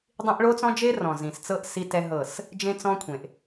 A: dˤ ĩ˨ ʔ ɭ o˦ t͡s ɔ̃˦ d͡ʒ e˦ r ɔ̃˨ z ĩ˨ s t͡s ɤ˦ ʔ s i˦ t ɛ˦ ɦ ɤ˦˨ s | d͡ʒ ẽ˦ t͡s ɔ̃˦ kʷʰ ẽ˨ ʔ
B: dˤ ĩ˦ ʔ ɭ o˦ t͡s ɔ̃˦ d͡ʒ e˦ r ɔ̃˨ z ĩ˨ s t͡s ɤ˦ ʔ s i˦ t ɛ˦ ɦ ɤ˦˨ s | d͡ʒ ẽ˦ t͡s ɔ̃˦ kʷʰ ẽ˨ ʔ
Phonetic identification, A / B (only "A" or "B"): B